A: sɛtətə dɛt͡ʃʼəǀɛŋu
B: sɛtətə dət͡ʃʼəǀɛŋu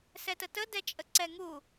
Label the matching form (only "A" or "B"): A